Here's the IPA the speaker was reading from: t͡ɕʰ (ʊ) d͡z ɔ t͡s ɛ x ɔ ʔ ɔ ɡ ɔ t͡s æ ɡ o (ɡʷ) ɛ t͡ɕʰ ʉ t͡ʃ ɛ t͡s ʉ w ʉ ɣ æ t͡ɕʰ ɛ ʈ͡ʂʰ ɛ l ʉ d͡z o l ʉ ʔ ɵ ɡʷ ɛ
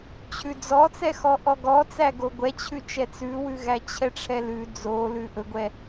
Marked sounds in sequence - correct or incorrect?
incorrect: ʉ, correct

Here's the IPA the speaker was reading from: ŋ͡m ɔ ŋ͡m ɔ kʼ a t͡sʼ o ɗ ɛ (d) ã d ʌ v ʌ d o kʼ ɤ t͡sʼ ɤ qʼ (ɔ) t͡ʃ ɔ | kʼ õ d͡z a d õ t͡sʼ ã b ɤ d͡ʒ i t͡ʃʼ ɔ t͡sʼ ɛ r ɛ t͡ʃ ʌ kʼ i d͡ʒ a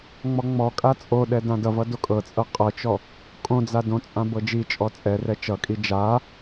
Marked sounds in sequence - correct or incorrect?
correct, incorrect: ɤ

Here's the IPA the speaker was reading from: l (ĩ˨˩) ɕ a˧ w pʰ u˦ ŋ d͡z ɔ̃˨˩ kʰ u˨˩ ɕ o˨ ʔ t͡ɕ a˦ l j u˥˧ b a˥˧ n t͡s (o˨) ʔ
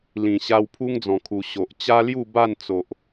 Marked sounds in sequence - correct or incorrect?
correct, correct

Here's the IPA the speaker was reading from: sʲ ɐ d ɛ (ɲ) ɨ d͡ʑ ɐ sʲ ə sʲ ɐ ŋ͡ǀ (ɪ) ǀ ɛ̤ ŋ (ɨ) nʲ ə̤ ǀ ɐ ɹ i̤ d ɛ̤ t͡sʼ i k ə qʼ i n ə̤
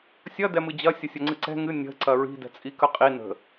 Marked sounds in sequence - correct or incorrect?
incorrect: m, incorrect: ɨ, correct

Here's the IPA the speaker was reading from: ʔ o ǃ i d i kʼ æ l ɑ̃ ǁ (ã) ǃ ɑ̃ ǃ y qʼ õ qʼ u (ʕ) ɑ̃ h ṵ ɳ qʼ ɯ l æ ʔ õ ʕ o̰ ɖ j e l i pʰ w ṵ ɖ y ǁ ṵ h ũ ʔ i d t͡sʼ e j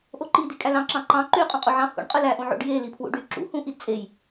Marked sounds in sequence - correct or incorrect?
incorrect: ɑ̃, correct

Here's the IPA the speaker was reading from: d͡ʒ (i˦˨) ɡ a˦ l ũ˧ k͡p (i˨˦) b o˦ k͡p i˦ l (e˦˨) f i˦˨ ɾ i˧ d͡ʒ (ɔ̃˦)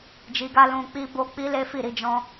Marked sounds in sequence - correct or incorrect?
incorrect: i˧, incorrect: i˦, incorrect: e˦, correct

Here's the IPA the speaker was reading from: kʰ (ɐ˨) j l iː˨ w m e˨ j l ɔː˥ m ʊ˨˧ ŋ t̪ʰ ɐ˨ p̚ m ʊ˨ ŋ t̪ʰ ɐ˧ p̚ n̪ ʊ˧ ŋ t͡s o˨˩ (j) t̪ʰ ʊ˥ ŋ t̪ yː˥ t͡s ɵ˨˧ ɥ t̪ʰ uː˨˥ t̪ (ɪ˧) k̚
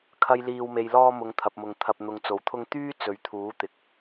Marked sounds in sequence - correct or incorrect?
incorrect: ɐ˧, incorrect: w, incorrect: ɪ˨

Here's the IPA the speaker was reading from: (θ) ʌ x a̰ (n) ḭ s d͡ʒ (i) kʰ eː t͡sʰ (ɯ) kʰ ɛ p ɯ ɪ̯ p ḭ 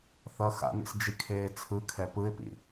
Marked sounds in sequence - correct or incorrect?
correct, correct, correct, correct

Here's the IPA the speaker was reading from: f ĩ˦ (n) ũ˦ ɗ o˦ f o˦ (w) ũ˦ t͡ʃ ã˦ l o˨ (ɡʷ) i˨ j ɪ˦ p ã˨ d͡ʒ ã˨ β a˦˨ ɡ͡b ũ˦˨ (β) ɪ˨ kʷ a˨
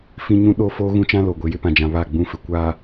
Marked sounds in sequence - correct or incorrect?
incorrect: ɲ, incorrect: ɣ, correct, incorrect: f

